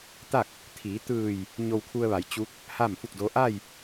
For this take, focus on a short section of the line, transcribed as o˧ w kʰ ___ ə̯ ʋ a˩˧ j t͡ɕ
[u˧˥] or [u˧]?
u˧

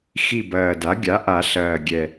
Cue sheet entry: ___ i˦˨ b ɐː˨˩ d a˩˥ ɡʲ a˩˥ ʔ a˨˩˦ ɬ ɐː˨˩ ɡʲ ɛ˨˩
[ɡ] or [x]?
x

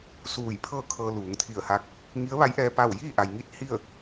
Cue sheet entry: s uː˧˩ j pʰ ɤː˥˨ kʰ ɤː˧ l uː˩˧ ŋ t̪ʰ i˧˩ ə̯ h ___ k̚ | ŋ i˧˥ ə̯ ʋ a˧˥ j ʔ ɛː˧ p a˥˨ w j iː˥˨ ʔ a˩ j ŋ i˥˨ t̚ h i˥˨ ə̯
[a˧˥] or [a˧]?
a˧˥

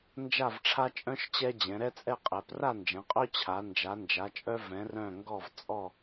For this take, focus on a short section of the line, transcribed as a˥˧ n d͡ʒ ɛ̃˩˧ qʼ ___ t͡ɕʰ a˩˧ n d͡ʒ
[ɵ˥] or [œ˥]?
œ˥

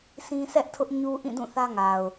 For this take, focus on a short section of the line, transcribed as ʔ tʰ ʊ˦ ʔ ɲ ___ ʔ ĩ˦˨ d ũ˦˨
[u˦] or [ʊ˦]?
u˦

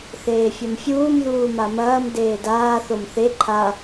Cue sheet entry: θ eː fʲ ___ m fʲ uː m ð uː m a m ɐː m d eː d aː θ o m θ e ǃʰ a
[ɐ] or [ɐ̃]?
ɐ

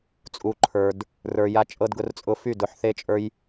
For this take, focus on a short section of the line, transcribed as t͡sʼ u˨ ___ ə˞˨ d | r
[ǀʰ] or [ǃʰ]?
ǃʰ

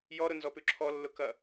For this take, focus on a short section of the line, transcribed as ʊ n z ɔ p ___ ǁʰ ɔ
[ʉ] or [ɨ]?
ʉ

